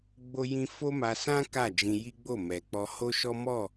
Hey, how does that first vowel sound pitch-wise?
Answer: high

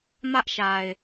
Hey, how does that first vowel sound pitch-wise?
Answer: high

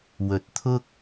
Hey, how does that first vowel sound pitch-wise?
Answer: low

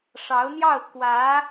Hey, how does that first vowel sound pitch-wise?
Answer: rising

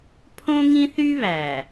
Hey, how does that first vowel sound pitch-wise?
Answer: high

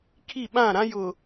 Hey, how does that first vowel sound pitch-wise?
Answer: falling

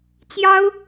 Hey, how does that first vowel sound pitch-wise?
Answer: high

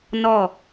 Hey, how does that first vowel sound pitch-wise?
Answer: falling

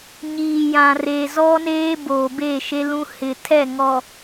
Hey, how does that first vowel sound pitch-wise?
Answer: low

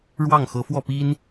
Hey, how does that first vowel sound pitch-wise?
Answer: falling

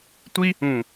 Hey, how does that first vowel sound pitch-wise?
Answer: high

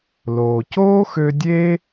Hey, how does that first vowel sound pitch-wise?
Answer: low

